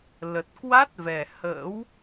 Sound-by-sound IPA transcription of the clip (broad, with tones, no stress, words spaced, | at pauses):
lə˨˩t̚ kwa˦˥t̚ vɛ˨˩hə̰ː˧˥w